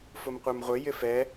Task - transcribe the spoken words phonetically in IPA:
f ʊ m qʷ ə˞ m ʁʷ ɪ j ɪ f ɛ

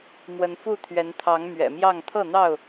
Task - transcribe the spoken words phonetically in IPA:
m w ə˨˦ n f u˥˨ t̪ʰ ɥ ɛ˨˦ n t̪ʰ ɑ˨˦ ŋ m ɥ ɛ̰˨˩ m j ɑ˥˨ ŋ t̪ʰ ɤ˥˨ n̪ ɑ˥˨ ʊ̯

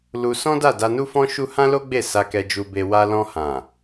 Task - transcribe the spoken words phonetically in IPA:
l u˧ s ɔ̃˦ d a˦˨ d a˧ n u˦ f ɔ̃˦ ʃ u˦ h ã˦ l o˦ ɡ͡b e˦˨ s a˧ k ɛ˧ d͡ʒ u˧ b e˧ w a˧ l ɔ̃˧ h ã˨

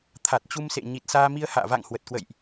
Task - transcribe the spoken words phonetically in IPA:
t̪ʰ a˨˩ t̚ t͡ɕ u˧ m s ḛ˧˨ ɲ i˨˩ t̚ s aː˧ m i˧ ə̯ h a̰ː˧˨ v a̰˧˨ ŋ h w ə˨˩ t̚ k w ə̰˧˨ j ʔ

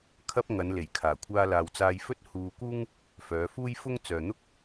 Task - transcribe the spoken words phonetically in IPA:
kʰ ɐ˥ p̚ ŋ ɐ˨˧ n l e˨˩ j kʰ aː˨˩ kʷʰ aː˧ l aː˨ w t͡s aː˧ j f ɵ˥ t̚ h uː˧ k uː˥ ŋ | f œː˨˧ f uː˥ j f ʊ˥ ŋ t͡s œː˨ n̪ ʊ˥ k̚

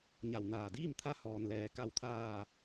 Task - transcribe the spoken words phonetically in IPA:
ɲ a˩ w n aː˩ d iː˥˨ m t̪ʰ a˧˥ h ɔː˩ n l ɛː˩ k a˧˩ w t̪ʰ aː˧˩

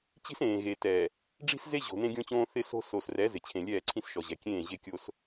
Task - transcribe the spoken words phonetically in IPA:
t͡ɕ i̤˦ s ẽː˨ ɣ e˨ t ɛ˨ | ɖ͡ʐ i̤˦ s z e˦ ʑ o̤˨ n ẽ˦ ɡʲ õ˦ t͡ɕ õː˦ θ ɪ˦ s o̤˦ s o˨ s r ɛ˨˦ z ɪ˨ t͡ɕʰ ẽ˨ lʲ ɛː˦˨ ǀʰ ĩ˦ s ʃ ɔ˨ ʑ ɛ˨ kʲ ẽː˦˨ ʑ e˦ kʲ o˦ s

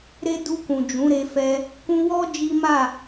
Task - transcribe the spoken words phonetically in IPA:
ɾ e˦ d u˧ k ũ˨ d͡ʒ ũ˨˦ ɾ e˧ f ɛ˧ | k ũ˧ w ɔ˦ d͡ʒ i˦ m a˦˨

